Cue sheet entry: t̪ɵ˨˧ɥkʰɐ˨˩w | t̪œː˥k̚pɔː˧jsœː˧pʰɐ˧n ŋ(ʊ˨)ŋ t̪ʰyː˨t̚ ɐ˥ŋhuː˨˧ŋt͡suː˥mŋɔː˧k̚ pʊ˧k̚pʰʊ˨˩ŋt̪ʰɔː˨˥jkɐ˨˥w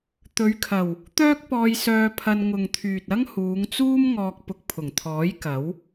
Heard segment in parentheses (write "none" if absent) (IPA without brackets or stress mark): ʊ˨